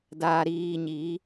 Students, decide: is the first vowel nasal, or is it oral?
oral